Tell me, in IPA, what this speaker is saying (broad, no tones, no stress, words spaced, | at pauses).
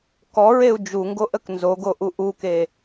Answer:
kɔɹeu̯ d͡ʒuŋɡoʔək nzoɡoʔu ʔuke